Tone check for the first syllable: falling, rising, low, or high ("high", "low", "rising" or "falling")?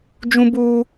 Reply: high